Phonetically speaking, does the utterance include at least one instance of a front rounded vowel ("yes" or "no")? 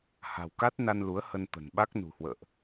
no